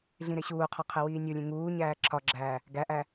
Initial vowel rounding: unrounded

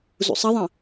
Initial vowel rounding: rounded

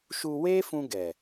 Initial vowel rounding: rounded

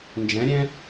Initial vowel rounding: unrounded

